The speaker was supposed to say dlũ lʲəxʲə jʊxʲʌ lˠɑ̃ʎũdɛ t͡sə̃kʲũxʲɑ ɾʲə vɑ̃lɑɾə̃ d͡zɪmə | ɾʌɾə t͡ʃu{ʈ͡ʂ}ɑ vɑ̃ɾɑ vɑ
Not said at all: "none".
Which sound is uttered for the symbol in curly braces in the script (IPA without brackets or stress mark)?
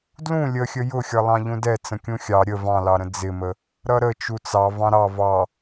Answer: t͡s